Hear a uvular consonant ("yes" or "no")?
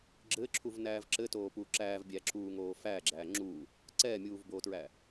no